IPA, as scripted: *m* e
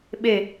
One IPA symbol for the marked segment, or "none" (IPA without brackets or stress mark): ɓ